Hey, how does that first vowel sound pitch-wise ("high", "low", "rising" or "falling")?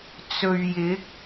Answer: low